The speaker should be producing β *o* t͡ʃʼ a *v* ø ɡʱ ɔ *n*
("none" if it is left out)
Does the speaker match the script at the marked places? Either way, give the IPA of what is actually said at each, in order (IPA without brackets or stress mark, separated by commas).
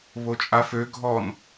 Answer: o, f, n